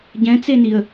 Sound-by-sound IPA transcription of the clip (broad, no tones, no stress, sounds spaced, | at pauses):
ɟ ɛ̃ t͡s e n i ə̯